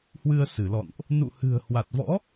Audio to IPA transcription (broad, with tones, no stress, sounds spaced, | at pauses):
h w ɨ˧ ə̯ s ɨ˧˩ l ɔ̰˧˨ n ʔ | n ṵ˧˨ h ɨ̤˨˩ ə̯ h w a˨˩ t̚ v ɔ̰˧˥